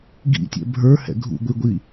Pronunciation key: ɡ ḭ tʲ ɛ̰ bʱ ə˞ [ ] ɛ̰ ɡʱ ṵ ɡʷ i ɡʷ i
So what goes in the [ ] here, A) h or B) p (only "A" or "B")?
A